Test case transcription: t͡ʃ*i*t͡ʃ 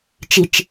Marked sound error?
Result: no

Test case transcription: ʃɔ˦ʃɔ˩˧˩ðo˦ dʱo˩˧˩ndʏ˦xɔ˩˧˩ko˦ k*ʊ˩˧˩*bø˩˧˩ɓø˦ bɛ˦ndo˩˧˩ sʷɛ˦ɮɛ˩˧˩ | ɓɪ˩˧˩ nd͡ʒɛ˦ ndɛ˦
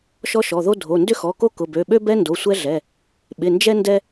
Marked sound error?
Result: no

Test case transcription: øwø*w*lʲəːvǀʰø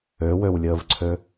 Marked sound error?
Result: no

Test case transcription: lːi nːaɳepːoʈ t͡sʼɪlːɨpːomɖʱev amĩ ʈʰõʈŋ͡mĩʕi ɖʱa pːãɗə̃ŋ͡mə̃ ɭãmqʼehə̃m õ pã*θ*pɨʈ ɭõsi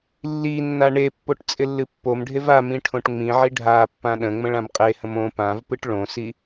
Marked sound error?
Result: yes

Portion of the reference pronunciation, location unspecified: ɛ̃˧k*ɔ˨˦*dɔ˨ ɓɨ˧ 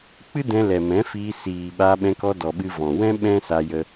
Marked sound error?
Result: yes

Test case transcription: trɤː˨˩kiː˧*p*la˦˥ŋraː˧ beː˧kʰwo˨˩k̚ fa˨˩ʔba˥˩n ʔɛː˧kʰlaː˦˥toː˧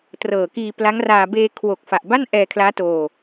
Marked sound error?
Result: no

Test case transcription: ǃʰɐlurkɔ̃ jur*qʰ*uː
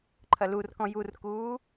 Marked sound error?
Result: yes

